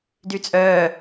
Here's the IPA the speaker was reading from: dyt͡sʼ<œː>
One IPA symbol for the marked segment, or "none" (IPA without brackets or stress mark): œː